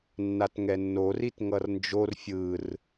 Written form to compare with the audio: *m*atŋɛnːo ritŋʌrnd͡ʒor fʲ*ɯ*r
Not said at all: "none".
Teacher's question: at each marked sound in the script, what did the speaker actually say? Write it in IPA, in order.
nː, ɯ

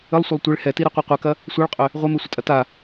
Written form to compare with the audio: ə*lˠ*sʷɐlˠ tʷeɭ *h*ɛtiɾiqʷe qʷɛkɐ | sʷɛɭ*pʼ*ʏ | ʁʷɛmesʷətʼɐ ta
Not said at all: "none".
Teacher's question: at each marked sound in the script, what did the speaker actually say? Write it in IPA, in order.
lˠ, h, qʼ

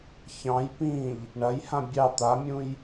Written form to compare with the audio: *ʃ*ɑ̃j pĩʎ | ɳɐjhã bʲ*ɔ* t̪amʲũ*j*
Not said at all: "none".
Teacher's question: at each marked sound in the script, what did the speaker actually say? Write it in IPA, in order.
ç, ɑ, j

